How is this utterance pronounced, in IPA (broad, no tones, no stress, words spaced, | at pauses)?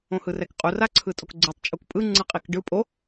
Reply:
õhɯrɛkqʼu raǀʰɯtʼokɡ͡ǀɯtˤ t͡ʃʼukpʼɯ ŋ͡ǀɯqʼikɖɯ pʼo